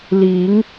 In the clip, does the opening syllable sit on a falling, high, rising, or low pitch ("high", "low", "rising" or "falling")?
rising